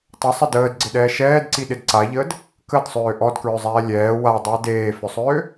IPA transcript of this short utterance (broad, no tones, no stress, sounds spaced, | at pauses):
tˤ ə sˤ ə d əː d ɡ͡ǀ ɪ ɗ ɛː ʃ ɛː d ǀ i ɗ ɪ d ǀ a ʎ əː d | k ə d sˤ øː ʔ ɔ d k ɹ ʏ zˤ ɛː lʲ ɛː w a dˤ əː d eː f ʏ sˤ øː